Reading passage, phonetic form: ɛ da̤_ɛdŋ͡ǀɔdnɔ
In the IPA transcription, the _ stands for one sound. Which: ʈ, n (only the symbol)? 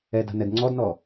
n